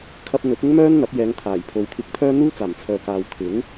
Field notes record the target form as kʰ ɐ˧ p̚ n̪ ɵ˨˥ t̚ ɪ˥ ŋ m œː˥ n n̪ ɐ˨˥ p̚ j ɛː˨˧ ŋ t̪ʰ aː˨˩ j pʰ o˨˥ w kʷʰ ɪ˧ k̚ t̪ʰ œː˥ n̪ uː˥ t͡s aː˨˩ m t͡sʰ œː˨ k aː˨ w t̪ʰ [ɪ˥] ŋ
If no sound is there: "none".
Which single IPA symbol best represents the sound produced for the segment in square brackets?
ɪ˨˥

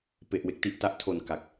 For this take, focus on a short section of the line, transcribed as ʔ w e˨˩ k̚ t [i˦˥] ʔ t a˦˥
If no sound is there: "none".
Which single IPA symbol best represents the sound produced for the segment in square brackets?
i˦˥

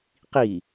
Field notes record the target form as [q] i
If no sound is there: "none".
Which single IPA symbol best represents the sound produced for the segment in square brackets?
q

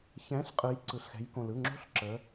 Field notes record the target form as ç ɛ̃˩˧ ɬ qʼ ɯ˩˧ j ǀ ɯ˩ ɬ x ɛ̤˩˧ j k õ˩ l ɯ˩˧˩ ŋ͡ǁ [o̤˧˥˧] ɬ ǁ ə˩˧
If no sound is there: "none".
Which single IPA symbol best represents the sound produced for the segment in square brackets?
o̤˧˥˧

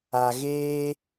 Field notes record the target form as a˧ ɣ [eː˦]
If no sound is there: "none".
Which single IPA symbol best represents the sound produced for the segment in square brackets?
eː˦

